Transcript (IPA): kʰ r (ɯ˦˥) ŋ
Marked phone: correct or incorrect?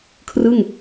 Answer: incorrect